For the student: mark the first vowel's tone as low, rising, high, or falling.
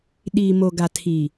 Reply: low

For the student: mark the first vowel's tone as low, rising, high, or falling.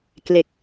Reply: low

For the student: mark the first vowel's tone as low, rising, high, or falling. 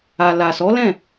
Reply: low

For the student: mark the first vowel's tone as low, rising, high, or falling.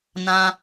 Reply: high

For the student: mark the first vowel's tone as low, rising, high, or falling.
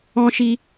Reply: high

